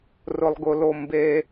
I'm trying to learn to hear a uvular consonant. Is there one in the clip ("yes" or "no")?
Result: no